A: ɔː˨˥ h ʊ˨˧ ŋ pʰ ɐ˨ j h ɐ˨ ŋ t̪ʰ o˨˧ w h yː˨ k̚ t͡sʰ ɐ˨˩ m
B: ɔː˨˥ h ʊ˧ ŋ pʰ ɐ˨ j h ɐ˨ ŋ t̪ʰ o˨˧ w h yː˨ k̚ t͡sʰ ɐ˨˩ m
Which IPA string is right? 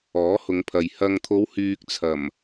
A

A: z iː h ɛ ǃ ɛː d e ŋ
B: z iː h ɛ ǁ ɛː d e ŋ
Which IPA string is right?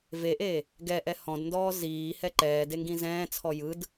A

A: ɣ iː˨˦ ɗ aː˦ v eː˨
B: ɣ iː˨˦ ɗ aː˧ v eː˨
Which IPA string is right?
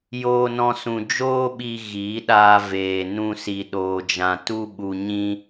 B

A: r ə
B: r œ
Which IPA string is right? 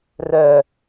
B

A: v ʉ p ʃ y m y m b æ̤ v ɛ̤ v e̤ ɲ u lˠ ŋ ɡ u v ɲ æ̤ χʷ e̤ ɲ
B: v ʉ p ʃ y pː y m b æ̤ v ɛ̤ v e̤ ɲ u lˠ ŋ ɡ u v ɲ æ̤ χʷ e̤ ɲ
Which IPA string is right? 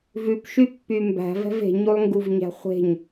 B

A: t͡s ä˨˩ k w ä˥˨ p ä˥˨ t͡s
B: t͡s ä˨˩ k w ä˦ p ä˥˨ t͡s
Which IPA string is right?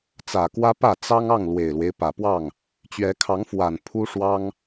B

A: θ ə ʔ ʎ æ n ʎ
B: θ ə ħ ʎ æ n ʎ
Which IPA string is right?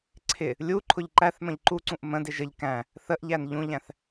A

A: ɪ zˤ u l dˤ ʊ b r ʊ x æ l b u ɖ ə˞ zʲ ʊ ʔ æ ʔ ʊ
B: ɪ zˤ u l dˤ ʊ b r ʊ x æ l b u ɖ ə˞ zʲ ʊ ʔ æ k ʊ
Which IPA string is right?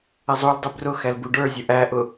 A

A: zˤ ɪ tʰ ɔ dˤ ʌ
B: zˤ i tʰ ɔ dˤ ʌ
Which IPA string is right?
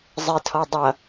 A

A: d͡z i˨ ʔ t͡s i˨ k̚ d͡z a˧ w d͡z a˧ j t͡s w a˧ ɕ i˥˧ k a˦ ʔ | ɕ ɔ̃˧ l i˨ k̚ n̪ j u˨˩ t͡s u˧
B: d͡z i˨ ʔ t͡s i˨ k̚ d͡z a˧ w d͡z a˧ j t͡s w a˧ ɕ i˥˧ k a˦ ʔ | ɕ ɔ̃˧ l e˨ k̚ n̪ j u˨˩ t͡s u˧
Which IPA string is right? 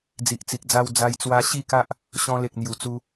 B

